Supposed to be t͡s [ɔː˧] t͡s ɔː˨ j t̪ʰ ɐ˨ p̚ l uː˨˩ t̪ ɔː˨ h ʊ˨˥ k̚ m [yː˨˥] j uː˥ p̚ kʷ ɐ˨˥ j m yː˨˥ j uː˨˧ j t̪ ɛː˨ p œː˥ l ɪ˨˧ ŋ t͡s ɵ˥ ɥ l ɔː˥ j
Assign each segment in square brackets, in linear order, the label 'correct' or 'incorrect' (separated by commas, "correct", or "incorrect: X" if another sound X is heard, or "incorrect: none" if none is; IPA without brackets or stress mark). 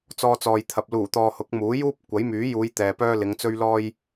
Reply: correct, incorrect: uː˨˥